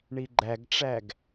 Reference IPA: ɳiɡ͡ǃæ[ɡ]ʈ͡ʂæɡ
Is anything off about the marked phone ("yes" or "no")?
no